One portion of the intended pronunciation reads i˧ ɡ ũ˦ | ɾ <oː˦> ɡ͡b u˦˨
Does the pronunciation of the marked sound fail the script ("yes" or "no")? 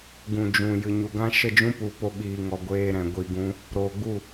yes